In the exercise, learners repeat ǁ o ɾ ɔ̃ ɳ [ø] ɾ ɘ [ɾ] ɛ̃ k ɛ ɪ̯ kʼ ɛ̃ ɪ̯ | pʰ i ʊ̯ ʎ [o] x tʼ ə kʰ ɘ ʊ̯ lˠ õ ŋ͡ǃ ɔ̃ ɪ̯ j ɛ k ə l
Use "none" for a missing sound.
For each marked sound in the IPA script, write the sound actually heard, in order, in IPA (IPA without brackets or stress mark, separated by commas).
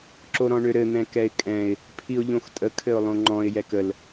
ø, n̪, õ